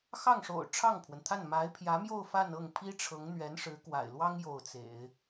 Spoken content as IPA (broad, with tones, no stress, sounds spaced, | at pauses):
x ɑ˥˩ ŋ ʂ o̰˨˩ ʊ̯ ʈ͡ʂʰ ɑ˥˩ ŋ pʰ w ə˩ n t̪ʰ a˥˩ n m a˧˥ ɪ̯ pʰ j ä˧˥ m j o˥˧ ʊ̯ f a˥˧ n ɤ˥˩ ŋ pʰ i˥ ʈ͡ʂʰ ɤ˧˥ ŋ n̪ ɥ ɛ˧˥ n ʂ ɻ̩˧˥ k w a̰˨˩ ɪ̯ l w ɑ˥ ŋ j o˥˩ ʊ̯ t͡s ḛ˨˩˦ ɪ̯